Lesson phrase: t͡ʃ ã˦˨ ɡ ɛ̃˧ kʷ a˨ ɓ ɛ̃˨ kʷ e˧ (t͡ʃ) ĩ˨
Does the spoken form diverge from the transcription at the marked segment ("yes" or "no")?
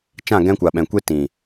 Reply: yes